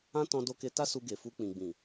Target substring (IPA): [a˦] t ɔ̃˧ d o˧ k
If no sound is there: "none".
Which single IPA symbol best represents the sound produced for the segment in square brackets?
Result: ã˦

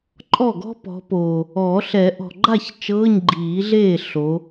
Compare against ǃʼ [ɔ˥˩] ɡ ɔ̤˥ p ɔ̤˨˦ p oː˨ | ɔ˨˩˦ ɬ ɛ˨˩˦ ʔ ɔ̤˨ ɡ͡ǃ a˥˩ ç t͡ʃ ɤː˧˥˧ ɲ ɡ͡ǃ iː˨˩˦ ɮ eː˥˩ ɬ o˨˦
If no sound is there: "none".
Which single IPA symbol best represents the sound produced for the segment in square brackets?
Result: ɔ˥˩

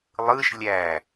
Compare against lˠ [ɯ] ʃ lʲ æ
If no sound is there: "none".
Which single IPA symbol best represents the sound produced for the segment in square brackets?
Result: ɯ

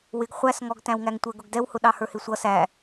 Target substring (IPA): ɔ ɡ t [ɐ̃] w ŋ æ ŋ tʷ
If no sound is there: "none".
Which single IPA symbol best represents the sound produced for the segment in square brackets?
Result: æ̃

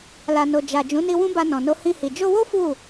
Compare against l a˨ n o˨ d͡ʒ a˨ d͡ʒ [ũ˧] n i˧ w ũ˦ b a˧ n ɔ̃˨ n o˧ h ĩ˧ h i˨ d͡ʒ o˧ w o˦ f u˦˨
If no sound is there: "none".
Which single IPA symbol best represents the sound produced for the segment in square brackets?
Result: ũ˨˦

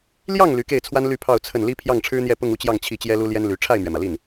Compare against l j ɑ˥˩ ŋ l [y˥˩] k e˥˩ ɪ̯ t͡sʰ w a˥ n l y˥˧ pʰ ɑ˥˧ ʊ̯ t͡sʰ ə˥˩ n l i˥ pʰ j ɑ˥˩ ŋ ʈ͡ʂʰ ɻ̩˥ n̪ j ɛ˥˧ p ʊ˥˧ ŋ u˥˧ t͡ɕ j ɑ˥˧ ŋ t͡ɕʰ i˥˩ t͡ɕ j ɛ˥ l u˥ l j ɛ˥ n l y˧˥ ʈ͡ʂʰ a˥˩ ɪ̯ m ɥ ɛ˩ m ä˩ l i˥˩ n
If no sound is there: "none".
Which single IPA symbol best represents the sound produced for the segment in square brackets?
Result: y˧˥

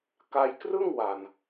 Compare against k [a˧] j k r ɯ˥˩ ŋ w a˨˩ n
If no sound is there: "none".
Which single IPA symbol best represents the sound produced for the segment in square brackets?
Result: a˧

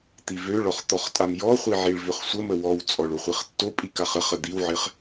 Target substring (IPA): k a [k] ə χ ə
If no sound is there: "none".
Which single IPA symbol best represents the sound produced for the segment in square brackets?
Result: χ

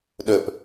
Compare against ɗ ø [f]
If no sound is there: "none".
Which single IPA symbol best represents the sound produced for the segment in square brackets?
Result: p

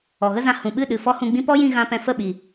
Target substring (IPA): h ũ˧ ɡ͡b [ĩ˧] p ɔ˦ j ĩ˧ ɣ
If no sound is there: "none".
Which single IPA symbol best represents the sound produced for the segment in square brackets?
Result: ĩ˦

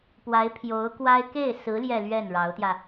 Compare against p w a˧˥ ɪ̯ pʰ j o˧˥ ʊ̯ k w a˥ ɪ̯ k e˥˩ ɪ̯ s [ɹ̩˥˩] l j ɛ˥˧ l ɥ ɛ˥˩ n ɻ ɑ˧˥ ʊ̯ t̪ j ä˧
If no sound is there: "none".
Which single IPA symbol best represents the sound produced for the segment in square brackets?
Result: ɹ̩˧˥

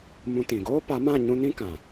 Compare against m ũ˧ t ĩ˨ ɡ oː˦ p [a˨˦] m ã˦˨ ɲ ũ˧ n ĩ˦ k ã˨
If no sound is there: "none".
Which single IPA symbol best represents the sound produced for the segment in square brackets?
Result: a˨˦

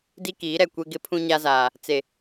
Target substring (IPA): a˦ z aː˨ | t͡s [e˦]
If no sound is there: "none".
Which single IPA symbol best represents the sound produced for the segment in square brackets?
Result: e˨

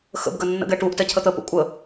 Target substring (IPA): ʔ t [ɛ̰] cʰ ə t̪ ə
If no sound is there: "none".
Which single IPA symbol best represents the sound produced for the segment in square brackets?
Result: ɛ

